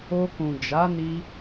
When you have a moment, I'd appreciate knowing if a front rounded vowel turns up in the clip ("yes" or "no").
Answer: no